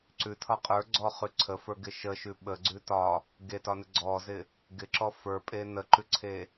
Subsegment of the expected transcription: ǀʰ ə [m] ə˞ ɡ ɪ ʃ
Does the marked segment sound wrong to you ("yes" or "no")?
yes